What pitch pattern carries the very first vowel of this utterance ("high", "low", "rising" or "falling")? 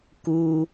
high